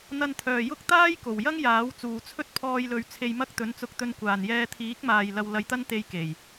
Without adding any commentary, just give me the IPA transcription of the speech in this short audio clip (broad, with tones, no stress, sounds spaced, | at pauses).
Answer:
n̪ ɐ˧ n t̪ʰ œː˨ j ʊ˥ k̚ t̪ aː˥ j k o˨˩ w j ɐ˥ ŋ j aː˨˥ w t͡s uː˨ t͡sʰ ɵ˥ t̚ pʰ ɔː˧ j l ɵ˧ ɥ t͡sʰ e˧ j m ɐ˥ k̚ t̪ ɵ˨˥ n t͡s ʊ˧ k̚ t̪ ɵ˧ n kʷ aː˨ n j ɛː˧ t̪ʰ iː˨˥ k̚ m aː˨ j l ɐ˧ w l ɐ˧ j t̪ ɐ˥ n t̪ e˧ j k e˨˩ j